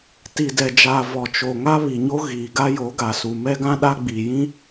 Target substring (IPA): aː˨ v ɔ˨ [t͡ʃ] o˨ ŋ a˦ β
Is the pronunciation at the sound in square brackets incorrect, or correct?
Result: correct